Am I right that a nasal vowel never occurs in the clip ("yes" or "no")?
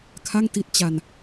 yes